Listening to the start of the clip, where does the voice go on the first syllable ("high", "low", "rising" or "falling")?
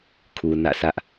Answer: low